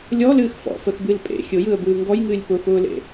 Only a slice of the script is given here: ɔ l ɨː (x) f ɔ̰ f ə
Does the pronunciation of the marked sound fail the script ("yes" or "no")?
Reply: no